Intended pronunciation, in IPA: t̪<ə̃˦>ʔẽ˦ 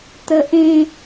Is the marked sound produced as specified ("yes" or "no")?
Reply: no